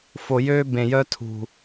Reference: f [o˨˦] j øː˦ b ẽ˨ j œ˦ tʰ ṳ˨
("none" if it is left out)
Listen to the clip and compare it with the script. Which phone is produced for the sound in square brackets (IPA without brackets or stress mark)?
o˨